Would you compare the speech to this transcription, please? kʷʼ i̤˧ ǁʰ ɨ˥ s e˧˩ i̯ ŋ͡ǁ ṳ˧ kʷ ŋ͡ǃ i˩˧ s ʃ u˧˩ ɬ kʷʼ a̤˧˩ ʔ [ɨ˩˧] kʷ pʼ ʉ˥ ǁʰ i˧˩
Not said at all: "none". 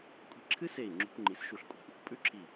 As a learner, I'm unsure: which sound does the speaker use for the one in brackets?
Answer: ɨ˩˧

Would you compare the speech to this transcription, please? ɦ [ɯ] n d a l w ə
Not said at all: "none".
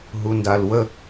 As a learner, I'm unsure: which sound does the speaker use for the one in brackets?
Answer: u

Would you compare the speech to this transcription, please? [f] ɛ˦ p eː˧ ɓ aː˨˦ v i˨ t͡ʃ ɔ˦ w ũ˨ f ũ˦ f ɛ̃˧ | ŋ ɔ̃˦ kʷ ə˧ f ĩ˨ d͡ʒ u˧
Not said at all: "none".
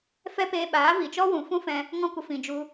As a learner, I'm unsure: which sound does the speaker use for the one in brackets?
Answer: f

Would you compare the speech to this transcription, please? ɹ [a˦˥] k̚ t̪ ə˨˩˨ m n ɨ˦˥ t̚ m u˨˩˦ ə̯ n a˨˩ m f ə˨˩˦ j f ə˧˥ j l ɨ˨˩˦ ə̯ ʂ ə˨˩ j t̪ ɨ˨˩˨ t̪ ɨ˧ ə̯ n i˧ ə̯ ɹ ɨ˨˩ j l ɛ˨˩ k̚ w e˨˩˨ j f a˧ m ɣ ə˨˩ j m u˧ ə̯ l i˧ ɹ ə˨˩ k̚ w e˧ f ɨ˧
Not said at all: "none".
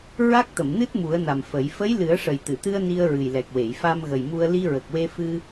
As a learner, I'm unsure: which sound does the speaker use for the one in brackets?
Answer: a˦˥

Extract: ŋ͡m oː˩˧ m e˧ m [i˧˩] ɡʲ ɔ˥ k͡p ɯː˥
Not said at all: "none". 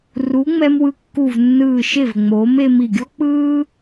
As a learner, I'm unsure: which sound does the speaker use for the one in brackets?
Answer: i˧˩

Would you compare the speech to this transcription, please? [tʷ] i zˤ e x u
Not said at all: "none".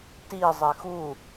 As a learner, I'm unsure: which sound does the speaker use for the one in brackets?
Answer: t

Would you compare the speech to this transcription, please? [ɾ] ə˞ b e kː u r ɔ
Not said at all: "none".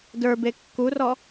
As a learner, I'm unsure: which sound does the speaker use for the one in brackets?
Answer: d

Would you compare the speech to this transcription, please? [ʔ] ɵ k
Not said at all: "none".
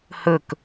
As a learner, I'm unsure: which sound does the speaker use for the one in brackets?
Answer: h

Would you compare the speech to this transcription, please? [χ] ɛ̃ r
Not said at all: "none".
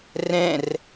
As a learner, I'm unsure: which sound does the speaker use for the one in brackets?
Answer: r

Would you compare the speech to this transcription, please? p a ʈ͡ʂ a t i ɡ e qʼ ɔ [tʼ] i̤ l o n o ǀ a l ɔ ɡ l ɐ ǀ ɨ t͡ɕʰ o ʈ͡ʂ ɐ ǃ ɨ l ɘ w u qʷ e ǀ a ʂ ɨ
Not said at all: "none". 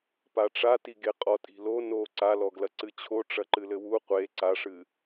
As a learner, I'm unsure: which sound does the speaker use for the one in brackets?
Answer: tʼ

